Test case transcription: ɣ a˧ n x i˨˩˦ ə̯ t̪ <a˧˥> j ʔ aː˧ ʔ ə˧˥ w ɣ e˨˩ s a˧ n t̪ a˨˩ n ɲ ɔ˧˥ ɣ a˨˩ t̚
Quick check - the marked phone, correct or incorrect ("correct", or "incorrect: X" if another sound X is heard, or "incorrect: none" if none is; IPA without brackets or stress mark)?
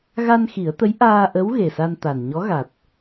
incorrect: ə˧˥